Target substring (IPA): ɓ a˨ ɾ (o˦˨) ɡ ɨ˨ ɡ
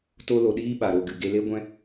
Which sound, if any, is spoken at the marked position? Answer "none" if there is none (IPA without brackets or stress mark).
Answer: o˦˨